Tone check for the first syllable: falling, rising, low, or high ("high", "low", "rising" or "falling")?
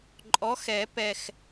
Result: rising